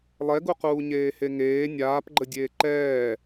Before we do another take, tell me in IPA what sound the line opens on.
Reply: lˠ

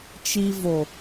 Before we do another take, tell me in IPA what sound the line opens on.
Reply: t͡ʃ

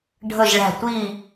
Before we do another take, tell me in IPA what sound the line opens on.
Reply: ɖʱ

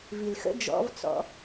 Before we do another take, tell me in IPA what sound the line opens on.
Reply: v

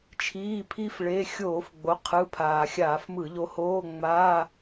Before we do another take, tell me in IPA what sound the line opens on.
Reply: t͡ʃʰ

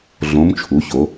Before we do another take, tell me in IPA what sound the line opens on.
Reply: ɮ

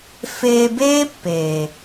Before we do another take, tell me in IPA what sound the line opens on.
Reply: f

